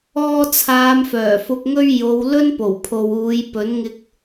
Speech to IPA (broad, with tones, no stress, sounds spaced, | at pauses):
ɔː˧ t͡sʰ aː˨˧ m f œː˨˩ f ʊ˨ k̚ ŋ ɵ˧ ɥ j o˨˧ w l ɵ˥ n p o˨˩ w pʰ o˨ w uː˨˧ j p ɵ˨˥ n ŋ ɪ˧ k̚